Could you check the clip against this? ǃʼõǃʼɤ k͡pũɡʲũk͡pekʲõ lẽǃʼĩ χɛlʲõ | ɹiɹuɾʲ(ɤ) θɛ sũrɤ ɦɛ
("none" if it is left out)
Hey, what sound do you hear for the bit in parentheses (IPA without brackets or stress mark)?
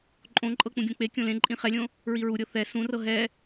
ɤ